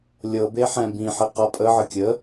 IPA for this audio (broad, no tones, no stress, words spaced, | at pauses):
lʲɤbeħɛ̃ bĩħeqa pʼəʕə kʲə